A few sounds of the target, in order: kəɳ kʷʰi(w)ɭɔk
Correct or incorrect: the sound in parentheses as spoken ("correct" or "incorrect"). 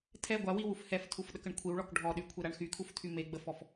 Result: correct